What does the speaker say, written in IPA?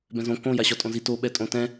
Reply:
b ɛ̃ z õ k õ j a ɕ ɒ tʼ õ z i t o ɓ ɛ tʼ õ t ɛ̃

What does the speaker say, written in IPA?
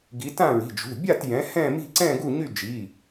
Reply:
ɡ i˨˦ t ã˥˧ ɹ i̤˩˧˩ d͡ʒ ṳ˩˧˩ bʲ a˥˧ t j ɛ̃˨˦ h ɛ̃˥˧ m i̤˥˧ ǀ ɛ̃˥˧ ɡ u˥˧ ɲ y˥˧ d͡ʒ i˩˧˩

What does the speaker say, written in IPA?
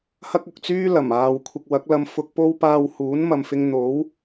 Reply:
h ɐ˥ k̚ ʊ˨ k̚ t͡s yː˥ l ɐ˨˩ m aː˨ w kʷʰ ɪ˨ k̚ w ɐ˨˥ k̚ l ɐ˧ m f ʊ˨ k̚ p o˧ w p aː˨ w h uː˨˥ n m ɐ˨ m f ɪ˧ ŋ n̪ o˨˥ w

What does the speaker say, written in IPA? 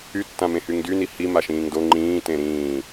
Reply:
y tː ã m ẽ h y ŋ d y n i h i m a ʃ ĩː ŋ d o ŋ͡ǃ ĩː t ẽ ɾ ĩː

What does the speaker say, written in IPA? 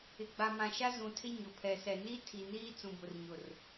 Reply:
ɪ˨ ɡ͡b a˨ m ã˨ ʃ a˦ z ũ˨ tʰ ɪ˦ ɲ ʊ˨ pʰ ɛ˨ s ɛ˨ n i˦ tʰ i˨ n iː˦ t͡s ũ˨ b ʊ˨ r ɲ ʊ˨ r

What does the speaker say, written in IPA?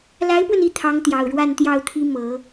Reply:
l a˧˥ ɪ̯ p w ə˧ n i˥˩ t̪ʰ ɑ˧˥ ŋ t̪ j ɑ˨˩ ʊ̯ ɻ w a˥˧ n t̪ j ɑ˥˩ ʊ̯ t̪ʰ i˥ m ɤ˨˩˦

